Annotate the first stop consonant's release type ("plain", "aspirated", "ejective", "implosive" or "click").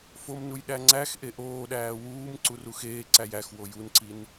implosive